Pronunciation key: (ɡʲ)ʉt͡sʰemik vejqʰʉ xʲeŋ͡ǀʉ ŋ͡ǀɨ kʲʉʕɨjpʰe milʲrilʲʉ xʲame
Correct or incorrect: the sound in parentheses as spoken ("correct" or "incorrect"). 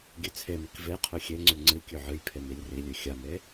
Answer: correct